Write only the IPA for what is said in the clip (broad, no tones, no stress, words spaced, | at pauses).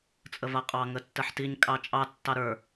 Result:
t͡sʼəvaqʼɑ ŋətːəħtiɲ kʼɑt͡ʃʼɑ tːɑɾə˞